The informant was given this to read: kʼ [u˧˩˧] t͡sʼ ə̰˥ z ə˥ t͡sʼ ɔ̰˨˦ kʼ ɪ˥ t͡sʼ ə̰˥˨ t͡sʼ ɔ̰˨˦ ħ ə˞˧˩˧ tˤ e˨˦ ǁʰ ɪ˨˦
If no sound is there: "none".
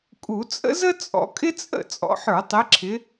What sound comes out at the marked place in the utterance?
u˧˩˧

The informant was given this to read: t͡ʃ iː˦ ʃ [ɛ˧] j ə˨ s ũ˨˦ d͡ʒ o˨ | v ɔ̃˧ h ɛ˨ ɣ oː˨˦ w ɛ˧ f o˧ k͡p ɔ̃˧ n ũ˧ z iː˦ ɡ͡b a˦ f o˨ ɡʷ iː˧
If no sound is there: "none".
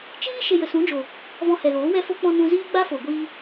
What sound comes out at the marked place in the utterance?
e˧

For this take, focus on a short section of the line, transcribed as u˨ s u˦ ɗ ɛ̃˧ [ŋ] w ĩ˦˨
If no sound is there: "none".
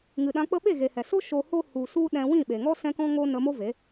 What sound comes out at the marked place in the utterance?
none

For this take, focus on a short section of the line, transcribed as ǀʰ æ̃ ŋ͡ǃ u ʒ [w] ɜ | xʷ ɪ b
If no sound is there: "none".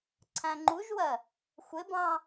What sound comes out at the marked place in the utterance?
w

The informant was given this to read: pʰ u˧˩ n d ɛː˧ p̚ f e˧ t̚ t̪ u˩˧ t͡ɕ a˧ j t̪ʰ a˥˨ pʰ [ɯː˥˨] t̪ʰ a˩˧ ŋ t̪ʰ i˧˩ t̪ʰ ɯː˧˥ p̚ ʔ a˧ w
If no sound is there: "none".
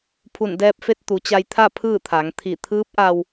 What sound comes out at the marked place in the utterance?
ɯː˥˨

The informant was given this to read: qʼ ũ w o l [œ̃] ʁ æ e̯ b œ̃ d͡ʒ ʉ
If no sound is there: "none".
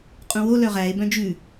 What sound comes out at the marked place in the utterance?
œ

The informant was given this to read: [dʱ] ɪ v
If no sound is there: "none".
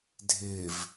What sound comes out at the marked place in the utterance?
dʱ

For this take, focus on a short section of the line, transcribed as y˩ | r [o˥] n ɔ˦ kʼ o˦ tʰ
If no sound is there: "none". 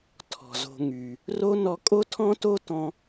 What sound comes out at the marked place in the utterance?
o˥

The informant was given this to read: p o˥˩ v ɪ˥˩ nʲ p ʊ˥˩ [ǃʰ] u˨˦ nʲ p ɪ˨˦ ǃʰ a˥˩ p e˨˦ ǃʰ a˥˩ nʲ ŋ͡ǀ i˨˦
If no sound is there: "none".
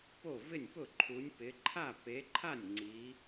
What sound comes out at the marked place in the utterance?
ǃʰ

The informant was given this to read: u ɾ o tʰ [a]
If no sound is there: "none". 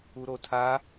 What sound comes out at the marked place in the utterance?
a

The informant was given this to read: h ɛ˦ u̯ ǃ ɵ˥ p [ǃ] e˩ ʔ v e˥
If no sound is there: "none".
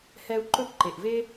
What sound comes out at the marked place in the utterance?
ǃ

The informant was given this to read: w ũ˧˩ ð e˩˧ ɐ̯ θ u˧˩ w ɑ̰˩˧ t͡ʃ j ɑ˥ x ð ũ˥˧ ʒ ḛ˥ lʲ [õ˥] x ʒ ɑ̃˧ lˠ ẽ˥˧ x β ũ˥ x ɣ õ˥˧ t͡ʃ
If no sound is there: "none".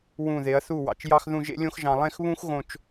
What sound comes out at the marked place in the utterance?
õ˥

